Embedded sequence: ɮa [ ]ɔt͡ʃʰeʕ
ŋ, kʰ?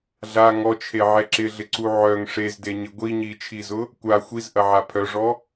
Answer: ŋ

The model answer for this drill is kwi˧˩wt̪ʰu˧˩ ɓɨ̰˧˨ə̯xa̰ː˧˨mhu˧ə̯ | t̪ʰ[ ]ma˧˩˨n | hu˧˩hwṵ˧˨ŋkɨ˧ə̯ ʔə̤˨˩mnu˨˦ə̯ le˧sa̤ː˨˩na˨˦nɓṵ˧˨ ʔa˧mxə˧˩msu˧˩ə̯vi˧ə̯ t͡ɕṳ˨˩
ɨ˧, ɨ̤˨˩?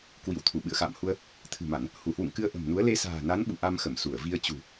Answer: ɨ̤˨˩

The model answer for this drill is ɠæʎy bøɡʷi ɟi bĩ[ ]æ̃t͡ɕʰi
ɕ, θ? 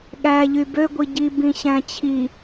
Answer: ɕ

